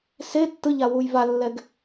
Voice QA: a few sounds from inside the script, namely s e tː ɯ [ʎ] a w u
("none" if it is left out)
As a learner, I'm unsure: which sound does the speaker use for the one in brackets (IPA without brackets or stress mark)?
ʎ